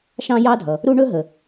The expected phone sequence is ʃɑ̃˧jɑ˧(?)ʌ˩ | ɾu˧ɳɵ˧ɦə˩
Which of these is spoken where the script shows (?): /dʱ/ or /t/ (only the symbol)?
dʱ